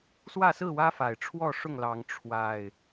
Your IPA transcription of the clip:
swä˥˨sɹ̩˥˨wä˦fa˨˩ɪ̯ ʈ͡ʂʰwɔ˥˨ʂʊ˥˨ŋlɑ˨˦ŋ ʈ͡ʂʰwa˨˩ɪ̯

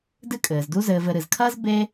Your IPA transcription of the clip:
dɨ˥kʼɘː˩zdu˥ zɘː˧vɘ˧ɾɨ˩z kʰɐː˥z be˥

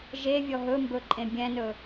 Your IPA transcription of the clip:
ʒevʲɔ ɦɵmbɵ ǃʼẽbʲɛ̃nɵ

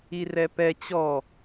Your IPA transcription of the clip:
irɛpɛ t͡ɕɔ

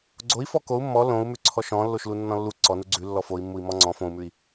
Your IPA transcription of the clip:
ɡ͡ǀoi̯fɔ kou̯ mːɔ lõu̯mʉ ǀʰɔʃɔ̃ lːoʃlunːɔ̃lːu ǀɔnu ɡ͡ǀʉ lːɔfoi̯mːui̯ mɔŋ͡ǀɔ̃ fõu̯mʉi̯

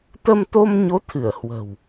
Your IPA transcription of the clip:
t̪ə˧mt̪o˧mɲo˨˦ t̪ʰɨ˧˩ə̯hwə̤˨˩w

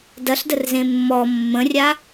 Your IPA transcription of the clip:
dɐɬdərzẽ mːɔ mːə̃rʲa

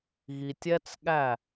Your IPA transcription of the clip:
ɣi˨tʲɛ˦t͡sɠæ˦˨

